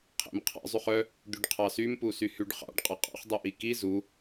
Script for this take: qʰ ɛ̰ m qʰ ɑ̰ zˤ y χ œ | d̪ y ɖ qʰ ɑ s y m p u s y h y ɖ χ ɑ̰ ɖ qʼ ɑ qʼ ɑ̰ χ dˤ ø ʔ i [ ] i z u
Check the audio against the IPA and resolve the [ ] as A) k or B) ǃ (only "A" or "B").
A